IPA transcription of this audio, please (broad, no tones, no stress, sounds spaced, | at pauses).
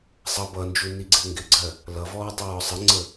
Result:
sˤ ʌ b ʌ n d͡ʒ u n i ɡ͡ǀ ɪ ʊ̯ ŋ ɡ ɪ ɡ͡ǀ ɜ | l ʌ v ɔː tˤ ʊ ɹ ɔ sˤ ə ŋ͡ǀ ə